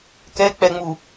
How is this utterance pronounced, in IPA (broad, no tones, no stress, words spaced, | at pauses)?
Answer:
kɛk͡pɛŋ͡mu